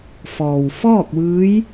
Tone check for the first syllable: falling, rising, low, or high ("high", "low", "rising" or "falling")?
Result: low